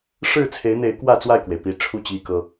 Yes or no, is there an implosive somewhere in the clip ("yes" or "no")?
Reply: no